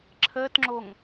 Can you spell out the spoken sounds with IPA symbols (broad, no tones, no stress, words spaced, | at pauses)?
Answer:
ǁʰəːtŋ͡ǁoŋ